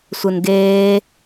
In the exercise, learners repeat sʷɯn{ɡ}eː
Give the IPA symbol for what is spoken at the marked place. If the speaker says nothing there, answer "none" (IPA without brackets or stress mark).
ɡ